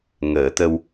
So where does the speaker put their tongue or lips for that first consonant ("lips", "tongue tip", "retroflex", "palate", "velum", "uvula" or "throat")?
velum